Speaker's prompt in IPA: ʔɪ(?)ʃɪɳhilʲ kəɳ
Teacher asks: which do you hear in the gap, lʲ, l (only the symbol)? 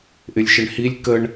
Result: lʲ